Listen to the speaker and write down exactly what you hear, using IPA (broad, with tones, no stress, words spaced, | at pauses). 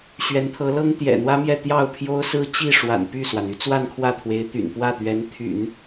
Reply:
ɕɥɛ˧˥nt̪ʰɤ˧˥lɤ˥ŋ t̪jɛ̰˨˩n̪wä˥mjɛ˥˧ t̪jɑ˥˩ʊ̯pʰjo˥ʊ̯ sɹ̩˥t͡ɕi˥˩ʂwa̰˨˩n py˥˩swa˩n y˥t͡swa˥˧nkʰwä˥˩t̪ʰwe˧˥ɪ̯ t̪y̰˨˩npwä˥˩t̪ɥɛ˧˥n t̪ʰy̰˨˩˦n